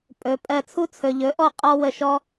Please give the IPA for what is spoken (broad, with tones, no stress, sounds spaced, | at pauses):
pʼ ɵ˩˧ pʼ ɜ˧˩ t͡sʰ u˦ t͡sʰ ɵ˩ ʎ ɵ˩˥ ʔ ɔ˧˩ qʼ ɔ˦ w ə˧˩ ʃ ɔ˦